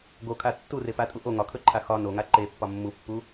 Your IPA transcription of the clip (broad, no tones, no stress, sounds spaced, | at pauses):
ɡ o kʰ a tː u r e p a tʼ u ʔ o ŋ ɒ kʰ ɵ ǃʰ a x ɒ n o ŋ a ǃ e pː ɒ mː u pː u